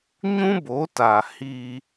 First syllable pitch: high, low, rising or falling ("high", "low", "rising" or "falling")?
high